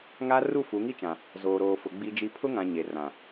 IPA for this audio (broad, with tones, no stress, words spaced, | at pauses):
ŋa˦ru˦˨fu˨˦ ŋi˦t͡ʃã˨ | zoː˨ɾoː˨fʊ˨ ɡ͡bi˦d͡ʒi˦ pʰʊ˦ŋã˨ ɲe˨ rã˨